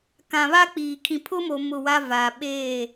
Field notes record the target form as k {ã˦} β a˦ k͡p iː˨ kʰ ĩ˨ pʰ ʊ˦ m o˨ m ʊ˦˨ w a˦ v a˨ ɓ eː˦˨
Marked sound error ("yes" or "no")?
yes